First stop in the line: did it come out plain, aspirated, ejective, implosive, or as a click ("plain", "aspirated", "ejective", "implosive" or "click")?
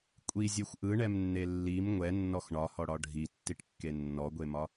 ejective